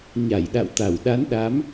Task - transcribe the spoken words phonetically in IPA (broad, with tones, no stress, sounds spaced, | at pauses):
ɲ a˧˩ j ɗ a̰˧˨ w t̪ a˧˩ w ɗ a˨˦ n ɗ a˨˦ m